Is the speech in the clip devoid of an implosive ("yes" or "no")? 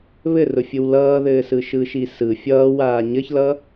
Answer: yes